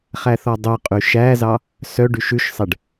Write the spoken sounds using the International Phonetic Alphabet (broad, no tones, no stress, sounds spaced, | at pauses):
χ æ θ ɔ dˤ œ qʼ y ʃ æ z ɑ | s œ ɖ y ʃ ʉ ʃ sˤ ɛ ɖ